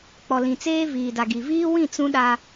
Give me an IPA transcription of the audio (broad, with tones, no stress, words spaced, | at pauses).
k͡pɔ˨lĩ˨t͡seː˦ viː˨da˨ɡi˨ viː˦wĩ˦˨ t͡sũ˦ ɗa˦